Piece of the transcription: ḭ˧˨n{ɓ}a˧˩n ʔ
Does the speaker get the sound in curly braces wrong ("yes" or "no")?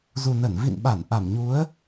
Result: no